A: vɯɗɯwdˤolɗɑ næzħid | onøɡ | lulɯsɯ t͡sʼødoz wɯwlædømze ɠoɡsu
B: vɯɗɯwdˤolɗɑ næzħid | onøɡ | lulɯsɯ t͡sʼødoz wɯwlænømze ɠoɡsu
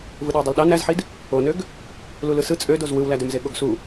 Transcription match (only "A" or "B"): A